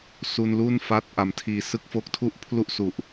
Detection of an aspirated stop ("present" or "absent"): present